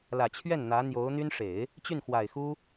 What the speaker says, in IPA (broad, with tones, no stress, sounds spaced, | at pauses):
l ä˨˩ t͡ɕʰ ɥ ɛ˥˩ n n̪ ä˧˥ n̪ j o˧˥ ʊ̯ n̪ y˥ n ʂ e˨˩˦ ɪ̯ | t͡ɕ y˥˩ n x w a˨˩ ɪ̯ x u˥